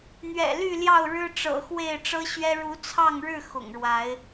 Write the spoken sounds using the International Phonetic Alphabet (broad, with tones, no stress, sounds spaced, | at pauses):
n̪ ɥ ɛ̰˨˩ l y˥˨ l j ɑ˥˨ ʊ̯ ɻ ɻ̩˦ ʈ͡ʂ ɤ̰˨˩ x w e˥˨ ɪ̯ ʈ͡ʂ ɤ˦ ɕ ɥ ɛ˦ ɻ u˨˦ t͡sʰ ɑ˥˨ ŋ ɻ ɻ̩˥˨ x ʊ̰˨˩ ŋ ɻ w a˨˦ ɪ̯